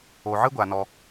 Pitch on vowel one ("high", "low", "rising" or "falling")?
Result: low